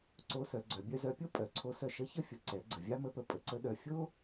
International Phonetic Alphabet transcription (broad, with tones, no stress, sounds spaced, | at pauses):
ǀ o˧˥ s œ˩˧ ɡ͡ǀ œ˩˧ bʲ œ˧ z œ˧ pʲ o˥ pʼ œ˩˧ ǀʰ o˧˥ s œ˧ ʃ ə˧˥ ç ə˥ fʲ ə˩˧ ǀ ɛ˩˧ ɡ͡ǀ ə˩ vʲ ɑ˥ m ə˧˥ p ə˩˧ pʼ ə˩ ǀ ə˥ ɗ œ˧ fʲ o˥